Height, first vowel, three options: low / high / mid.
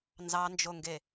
low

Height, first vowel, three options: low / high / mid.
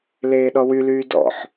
mid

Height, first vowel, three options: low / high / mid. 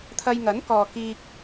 low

